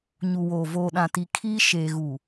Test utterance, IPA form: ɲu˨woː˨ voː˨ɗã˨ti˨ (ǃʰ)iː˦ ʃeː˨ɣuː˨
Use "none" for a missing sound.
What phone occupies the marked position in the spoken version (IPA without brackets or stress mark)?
kʰ